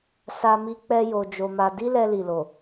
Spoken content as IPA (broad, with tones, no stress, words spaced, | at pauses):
sa˦mi˦ k͡pɛ˦jo˧d͡ʒo˧ma˧ di˦lɛ˧li˨lo˨